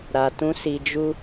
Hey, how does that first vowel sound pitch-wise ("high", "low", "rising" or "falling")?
low